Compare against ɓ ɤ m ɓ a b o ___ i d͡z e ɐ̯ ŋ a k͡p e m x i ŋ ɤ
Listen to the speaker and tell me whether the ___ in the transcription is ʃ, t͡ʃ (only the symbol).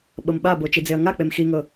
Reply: t͡ʃ